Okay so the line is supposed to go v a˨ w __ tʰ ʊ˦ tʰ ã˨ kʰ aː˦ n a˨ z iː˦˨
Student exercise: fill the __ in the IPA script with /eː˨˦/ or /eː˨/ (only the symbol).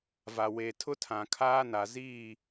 eː˨